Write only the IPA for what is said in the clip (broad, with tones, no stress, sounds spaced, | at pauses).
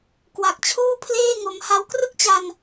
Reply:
k w a˨˩ k̚ t͡ɕʰ uː˥˩ pʰ l eː˥˩ ŋ o˧ m h a˧ w k r ɯ˥˩ k̚ t͡ɕ a˧ n